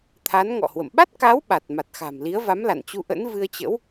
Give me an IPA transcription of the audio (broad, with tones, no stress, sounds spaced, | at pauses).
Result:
t̪ʰ a˨˦ n ŋ ɔ̰˧˨ h w ə̰˧˨ m ɓ a˦˥ t̚ k a˨˦ w ɓ a˨˩ t̚ m a˨˩ t̚ x a̤˨˩ m l i˨˦ ə̯ v a˨˦ m l a̰˧˨ n t͡ɕ u˧ ʔ ə̰˧˥ n v ɨ˧ ə̯ t͡ɕ ə̰˧˥ w